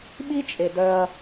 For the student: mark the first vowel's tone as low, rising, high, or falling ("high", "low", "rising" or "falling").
high